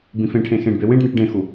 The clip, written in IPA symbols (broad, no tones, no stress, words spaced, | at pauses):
bĩfẽʈʰẽ xẽɖbe wẽɖneʈ ɖẽxu